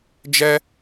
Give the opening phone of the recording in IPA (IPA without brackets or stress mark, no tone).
d͡ʒ